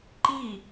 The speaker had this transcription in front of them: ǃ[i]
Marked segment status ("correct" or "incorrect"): correct